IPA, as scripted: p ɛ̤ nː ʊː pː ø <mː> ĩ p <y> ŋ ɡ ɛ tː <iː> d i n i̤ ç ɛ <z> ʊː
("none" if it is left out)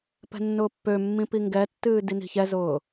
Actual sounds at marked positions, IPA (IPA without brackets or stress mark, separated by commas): mː, i, ɨː, z